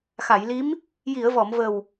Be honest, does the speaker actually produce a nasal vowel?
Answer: no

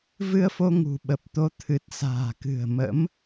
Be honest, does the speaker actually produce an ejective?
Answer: no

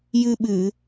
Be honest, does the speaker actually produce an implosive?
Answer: yes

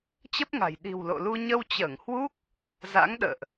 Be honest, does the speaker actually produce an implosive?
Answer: yes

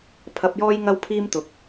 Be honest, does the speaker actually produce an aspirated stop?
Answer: yes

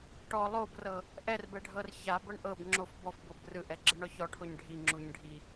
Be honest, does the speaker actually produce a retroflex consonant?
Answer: yes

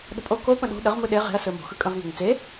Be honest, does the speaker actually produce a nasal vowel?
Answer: yes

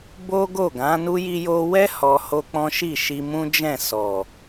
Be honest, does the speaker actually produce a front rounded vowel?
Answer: no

